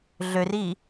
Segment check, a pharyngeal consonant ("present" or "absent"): absent